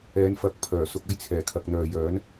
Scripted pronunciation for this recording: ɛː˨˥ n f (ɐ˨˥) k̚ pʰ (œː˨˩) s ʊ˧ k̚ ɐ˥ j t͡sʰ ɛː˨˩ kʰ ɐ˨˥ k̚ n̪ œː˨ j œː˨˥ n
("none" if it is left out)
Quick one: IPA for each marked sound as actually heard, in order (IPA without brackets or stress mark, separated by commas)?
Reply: ɐ˨˥, œː˨˩